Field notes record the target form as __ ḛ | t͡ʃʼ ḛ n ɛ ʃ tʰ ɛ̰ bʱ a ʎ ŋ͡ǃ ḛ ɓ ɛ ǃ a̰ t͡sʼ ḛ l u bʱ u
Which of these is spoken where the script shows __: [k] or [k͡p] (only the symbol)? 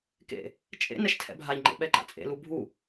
k